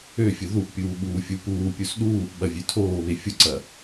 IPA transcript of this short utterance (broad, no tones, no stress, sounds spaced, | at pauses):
ø fʲ ʊ ð u ʔ pʲ uː ɓ uː fʲ u p uː pʲ u s ɗ uː ʔ ɓ ɐ vʲ ø tʰ oː β e fʲ ʊ ǀ ɐ